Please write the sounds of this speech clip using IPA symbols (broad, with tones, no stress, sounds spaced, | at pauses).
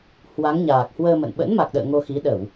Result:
h w a˨˦ ŋ ɲ aː˨˩ k̚ h w əː˧ m ə̰˧˨ n ɓ ə̰˧˥ n m a˨˩ k̚ ɗ ə̰ː˧˨ ŋ o˧ x i˨˦ ɗ ə˧˩˨ w